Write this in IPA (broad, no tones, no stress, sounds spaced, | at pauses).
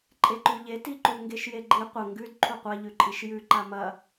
ǃʼ e ǃ ʉ ʎ e t i ǃ u ŋ ɡ e ʃ j e ɡ͡ǃ i qʷ ɐ ŋ ɡ ʉ d ǃʰ u qʷ a ʎ ʉ ǃʼ i ʃ j ʉ ǃ a m ɐ